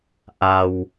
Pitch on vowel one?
low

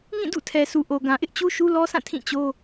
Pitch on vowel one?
falling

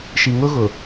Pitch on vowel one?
low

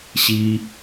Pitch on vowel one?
high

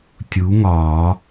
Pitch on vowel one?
rising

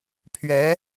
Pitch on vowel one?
rising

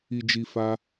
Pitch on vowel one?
low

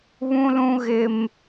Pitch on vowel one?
high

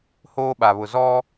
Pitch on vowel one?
high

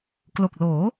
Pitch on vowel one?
low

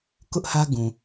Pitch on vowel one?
high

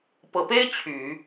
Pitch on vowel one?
low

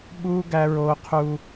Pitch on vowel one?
high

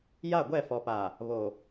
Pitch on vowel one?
falling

